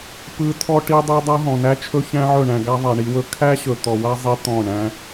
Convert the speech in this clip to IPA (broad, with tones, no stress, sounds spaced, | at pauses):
p ɯ˧ tʰ ɔ˦ ʈ i˦ dˤ i˦ dˤ a˦ ɦ ɔ̃˨ n æ˦ t͡ʃʰ ɵ˦ ç æ̃˦ ʕ ɵ˦˨ ɳ æ̃˧ ɡ a˦ ðˤ a˨ ɳ i˧ w ɵ˦ kʰ æ˦ ɕ ɵ˨ t̪ ɔ˨ w a˦ zˤ i˦ t̪ ɔ̃˦˨ ɳ æ̃˦